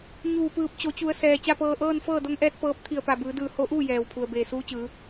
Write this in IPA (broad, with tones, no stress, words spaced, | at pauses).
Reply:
ɲuː˧˩pɯː˧˩p̚ t͡ɕo˩˧t͡ɕu˩˧ə̯sɛː˩ t͡ɕa˥˨pɤː˧ ʔɤː˥˨nfɤː˥˨do˧˥ŋʔɛː˧˥t̚ pɤː˧˥p̚ t̪ʰi˧˩ə̯pa˧˩bɯː˩˧dɯː˧˩ ho˧˥ʔuː˥˨jɛː˩wpʰu˩ə̯ beː˧˩suː˧˥t͡ɕɯː˩˧